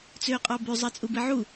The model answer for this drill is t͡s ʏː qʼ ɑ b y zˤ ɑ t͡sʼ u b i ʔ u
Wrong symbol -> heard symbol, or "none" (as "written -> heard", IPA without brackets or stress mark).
ʔ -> ʕ